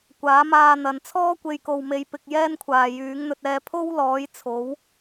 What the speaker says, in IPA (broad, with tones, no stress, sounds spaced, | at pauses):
kʷ aː˨˥ m aː˧ n̪ ɐ˨˧ n t͡sʰ ɔː˥ kʷ e˧ j k o˨ w m e˨˧ j p ɪ˧ k̚ j ɛː˥ n kʷʰ aː˨ j yː˨˥ ŋ n̪ ɵ˧ t̚ ɛː˧ pʰ o˥ w l ɔː˨˥ j t͡sʰ o˨˥ w